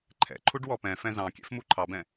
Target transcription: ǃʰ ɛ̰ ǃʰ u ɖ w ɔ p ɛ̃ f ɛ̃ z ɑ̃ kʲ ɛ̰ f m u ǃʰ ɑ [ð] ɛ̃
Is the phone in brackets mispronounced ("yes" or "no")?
yes